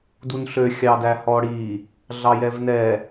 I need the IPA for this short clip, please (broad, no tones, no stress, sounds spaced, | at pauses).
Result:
d u n ɬ ø xʲ ɑ d æ h ɔ ɽ i | ɮ ɑ j ɛ v n ɛ